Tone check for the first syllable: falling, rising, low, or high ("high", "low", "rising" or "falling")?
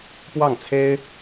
falling